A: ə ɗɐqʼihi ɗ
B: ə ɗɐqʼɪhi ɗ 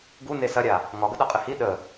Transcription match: B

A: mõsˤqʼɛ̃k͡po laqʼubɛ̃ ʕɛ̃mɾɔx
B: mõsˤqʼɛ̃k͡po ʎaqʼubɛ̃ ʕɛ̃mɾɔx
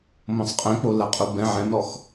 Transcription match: A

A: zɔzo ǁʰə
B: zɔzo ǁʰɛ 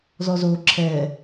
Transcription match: B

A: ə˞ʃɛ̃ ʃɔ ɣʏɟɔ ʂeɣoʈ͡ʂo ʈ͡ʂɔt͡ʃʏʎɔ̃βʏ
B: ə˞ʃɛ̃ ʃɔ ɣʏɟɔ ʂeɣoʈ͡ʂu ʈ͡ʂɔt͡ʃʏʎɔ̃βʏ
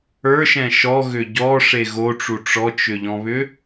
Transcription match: B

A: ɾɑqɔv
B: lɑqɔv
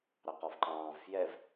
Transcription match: A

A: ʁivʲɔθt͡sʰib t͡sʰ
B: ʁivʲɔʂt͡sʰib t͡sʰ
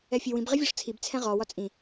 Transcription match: B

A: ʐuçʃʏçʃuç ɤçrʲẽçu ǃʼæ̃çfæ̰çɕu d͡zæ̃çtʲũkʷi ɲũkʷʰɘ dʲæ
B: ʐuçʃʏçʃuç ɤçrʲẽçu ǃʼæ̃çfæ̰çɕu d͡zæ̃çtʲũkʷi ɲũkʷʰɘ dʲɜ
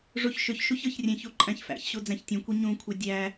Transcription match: A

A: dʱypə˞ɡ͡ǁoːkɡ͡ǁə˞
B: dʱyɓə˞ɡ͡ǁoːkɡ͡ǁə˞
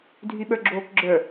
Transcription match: B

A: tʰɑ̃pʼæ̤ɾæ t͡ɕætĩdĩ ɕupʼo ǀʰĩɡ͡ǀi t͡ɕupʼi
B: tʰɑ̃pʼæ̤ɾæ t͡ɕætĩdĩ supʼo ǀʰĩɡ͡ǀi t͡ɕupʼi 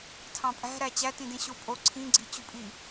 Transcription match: A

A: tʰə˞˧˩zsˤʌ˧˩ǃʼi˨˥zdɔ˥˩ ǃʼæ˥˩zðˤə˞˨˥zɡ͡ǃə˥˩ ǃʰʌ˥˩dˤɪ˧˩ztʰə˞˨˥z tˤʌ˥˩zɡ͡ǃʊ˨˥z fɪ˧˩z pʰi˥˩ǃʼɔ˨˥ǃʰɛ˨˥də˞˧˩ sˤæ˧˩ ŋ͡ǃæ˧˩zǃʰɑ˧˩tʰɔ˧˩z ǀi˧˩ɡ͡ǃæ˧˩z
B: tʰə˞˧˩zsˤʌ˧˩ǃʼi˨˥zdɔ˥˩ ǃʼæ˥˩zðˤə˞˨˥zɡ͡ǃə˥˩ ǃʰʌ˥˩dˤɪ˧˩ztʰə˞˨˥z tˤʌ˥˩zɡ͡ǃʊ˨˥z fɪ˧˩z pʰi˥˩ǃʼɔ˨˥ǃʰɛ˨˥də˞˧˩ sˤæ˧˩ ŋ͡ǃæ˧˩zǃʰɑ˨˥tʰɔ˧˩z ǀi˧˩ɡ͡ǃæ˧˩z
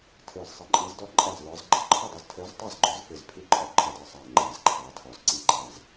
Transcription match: B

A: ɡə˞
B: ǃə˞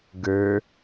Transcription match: A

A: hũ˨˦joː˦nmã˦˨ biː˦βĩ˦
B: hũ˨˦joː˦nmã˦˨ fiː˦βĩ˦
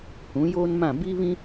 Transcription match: A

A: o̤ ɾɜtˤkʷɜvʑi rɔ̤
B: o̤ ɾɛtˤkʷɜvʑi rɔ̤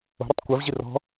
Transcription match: B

